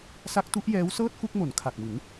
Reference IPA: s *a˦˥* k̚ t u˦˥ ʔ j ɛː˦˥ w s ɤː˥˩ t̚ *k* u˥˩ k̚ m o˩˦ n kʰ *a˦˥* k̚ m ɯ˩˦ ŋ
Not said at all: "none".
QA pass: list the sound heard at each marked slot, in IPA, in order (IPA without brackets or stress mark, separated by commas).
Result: a˦˥, k, a˨˩